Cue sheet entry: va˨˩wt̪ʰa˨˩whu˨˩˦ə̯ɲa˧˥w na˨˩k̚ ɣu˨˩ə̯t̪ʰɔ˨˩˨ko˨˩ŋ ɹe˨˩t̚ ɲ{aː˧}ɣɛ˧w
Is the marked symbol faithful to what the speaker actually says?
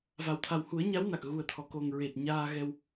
yes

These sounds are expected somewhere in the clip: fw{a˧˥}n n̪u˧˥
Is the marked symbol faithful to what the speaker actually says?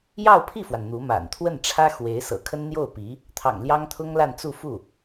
no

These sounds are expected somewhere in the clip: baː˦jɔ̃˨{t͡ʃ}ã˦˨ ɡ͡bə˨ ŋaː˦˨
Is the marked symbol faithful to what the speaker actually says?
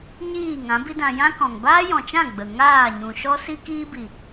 yes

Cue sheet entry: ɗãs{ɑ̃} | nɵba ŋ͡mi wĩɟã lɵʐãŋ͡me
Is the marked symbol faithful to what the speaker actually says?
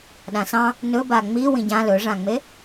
yes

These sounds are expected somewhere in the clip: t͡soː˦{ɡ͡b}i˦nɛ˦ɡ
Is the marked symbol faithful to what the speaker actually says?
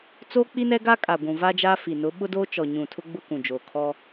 no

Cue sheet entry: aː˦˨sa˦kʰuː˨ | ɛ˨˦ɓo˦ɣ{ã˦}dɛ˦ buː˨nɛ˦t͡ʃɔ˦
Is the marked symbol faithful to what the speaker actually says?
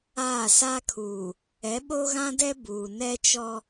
yes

